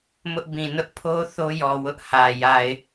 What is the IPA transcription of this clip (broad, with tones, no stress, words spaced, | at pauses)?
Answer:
mʊ˦ʔbĩ˨ nʊ˦ʔpʰo˦ θo˦jɔ˨ wʊ˦ʔhä˨ ja˨ɪ̯